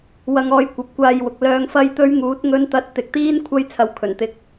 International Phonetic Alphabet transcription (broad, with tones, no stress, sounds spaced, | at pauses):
w ɐ˧ ŋ ɔː˧ j kʷ ɐ˨ p̚ kʷ aː˧ j w ʊ˨ k̚ l œː˨ ŋ f ɐ˧ j t̪ ɵ˥ ɥ ŋ uː˨˥ t̚ ŋ ɵ˥ n t̪ ɐ˥ t̚ t̪ ɪ˨ k̚ t̪ iː˥ n kʷʰ ɐ˥ j t͡sʰ ɐ˨˧ w kʰ ɵ˨˩ n t̪ ɪ˧ k̚